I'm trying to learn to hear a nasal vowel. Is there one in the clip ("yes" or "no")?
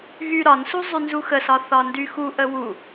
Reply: no